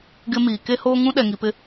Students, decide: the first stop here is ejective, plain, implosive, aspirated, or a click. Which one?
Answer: plain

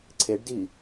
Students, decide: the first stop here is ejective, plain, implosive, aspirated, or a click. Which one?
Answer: click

